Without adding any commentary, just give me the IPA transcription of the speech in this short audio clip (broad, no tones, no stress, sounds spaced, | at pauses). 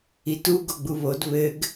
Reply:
i t u ɡ o ɡ͡b u β o d β ɘ ɡ